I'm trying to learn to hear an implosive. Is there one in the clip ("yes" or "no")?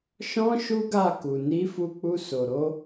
no